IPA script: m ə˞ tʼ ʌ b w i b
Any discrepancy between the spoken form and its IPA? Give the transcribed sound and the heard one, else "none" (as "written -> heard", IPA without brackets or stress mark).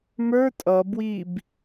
none